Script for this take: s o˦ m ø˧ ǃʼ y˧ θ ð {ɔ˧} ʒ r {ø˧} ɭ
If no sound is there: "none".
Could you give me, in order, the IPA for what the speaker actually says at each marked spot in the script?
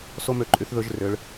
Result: ɵ˧, ø˧

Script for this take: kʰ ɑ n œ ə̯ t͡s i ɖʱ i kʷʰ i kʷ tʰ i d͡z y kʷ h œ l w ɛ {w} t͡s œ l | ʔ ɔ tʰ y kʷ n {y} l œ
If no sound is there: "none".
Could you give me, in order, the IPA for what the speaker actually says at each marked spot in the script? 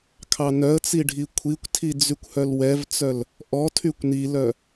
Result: v, i

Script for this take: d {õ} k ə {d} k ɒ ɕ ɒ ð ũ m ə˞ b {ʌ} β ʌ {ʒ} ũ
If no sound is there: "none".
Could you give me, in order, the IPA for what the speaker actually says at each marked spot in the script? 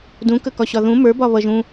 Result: ũ, none, ɒ, ʒ

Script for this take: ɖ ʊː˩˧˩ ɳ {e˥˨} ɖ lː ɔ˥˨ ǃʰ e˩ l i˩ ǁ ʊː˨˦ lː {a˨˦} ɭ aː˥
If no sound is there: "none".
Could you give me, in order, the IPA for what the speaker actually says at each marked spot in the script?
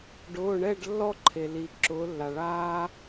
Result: ɛ˥˨, a˩

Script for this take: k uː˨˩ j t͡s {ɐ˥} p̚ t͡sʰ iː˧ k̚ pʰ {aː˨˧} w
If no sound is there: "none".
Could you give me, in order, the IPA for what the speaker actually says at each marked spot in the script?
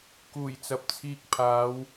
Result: ɐ˨, aː˨˧

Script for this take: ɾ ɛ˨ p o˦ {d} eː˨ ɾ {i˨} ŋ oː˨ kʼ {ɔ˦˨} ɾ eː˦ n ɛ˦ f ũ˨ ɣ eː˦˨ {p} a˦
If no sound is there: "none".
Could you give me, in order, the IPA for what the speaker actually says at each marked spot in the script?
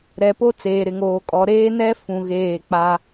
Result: t͡s, ɪ˨, ɔ˨, k͡p

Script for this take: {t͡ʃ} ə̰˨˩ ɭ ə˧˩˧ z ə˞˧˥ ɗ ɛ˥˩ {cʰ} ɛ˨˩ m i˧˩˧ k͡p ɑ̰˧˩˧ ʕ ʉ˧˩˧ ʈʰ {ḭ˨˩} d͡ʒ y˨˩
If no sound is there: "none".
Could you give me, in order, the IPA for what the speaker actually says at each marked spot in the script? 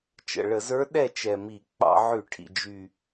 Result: t͡ʃ, t͡ʃ, ḭ˨˩

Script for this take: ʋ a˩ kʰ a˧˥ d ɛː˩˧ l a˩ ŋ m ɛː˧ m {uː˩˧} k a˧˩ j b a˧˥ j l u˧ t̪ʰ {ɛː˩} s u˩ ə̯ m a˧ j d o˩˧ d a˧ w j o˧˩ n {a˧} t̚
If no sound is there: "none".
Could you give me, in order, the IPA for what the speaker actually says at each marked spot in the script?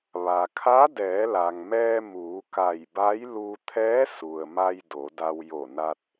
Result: uː˩˧, ɛː˧˥, a˧

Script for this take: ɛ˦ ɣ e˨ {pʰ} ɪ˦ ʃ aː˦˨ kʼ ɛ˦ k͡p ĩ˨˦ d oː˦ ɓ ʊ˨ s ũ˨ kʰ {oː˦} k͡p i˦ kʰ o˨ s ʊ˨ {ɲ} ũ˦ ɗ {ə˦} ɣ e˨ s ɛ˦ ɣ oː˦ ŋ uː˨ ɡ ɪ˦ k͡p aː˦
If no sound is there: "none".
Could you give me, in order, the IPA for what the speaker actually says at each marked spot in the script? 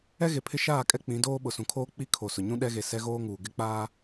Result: pʰ, oː˦, ɲ, ɛ˦

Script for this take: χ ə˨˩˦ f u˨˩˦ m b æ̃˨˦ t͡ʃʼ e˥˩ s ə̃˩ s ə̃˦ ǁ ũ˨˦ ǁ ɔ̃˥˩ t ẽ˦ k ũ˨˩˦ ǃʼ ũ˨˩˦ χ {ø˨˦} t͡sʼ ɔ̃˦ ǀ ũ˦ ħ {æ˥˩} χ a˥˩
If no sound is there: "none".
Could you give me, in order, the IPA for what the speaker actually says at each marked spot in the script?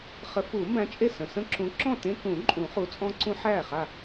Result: u˨˦, æ˥˩

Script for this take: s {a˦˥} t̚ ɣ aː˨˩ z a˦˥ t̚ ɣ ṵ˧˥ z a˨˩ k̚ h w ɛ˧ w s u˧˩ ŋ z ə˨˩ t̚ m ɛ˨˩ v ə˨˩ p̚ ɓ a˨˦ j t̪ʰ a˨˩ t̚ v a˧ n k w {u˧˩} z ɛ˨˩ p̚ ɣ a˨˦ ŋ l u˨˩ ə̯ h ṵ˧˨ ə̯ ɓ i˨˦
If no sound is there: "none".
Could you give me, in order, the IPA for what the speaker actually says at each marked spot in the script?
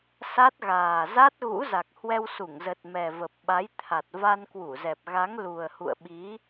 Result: a˦˥, u˧˩

